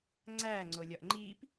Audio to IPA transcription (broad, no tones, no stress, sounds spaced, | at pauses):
ŋ͡ǀ æː ŋ͡ǀ o lʲ ɒ ʔ ŋ͡ǃ iː p